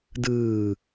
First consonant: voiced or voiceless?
voiced